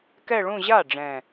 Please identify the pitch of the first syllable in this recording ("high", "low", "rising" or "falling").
falling